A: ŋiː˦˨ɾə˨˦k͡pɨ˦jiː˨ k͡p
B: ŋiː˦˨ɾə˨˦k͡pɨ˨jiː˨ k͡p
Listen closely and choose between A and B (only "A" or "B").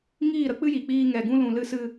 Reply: A